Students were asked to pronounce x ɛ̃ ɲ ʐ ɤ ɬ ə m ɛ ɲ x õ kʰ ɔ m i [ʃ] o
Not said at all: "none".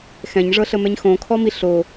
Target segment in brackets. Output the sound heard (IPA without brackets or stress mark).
ɬ